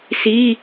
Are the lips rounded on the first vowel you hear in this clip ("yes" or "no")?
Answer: no